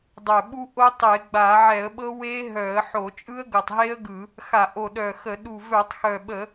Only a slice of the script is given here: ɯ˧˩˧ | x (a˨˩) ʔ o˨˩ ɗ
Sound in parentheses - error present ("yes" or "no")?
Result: yes